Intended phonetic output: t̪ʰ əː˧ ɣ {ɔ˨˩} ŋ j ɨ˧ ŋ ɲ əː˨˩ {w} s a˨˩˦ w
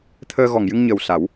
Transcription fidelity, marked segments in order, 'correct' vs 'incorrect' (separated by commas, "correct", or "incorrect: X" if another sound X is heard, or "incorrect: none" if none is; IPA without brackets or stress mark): correct, correct